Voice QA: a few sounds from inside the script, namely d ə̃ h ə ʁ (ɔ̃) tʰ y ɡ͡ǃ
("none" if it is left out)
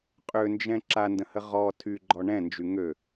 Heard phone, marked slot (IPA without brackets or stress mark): ɔ